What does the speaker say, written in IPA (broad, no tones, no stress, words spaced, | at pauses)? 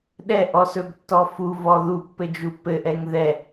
ɗɛ ʔɔsɵbtːɔfu vɔðupːɘ d͡ʒupːɘʔɛŋ ðɛ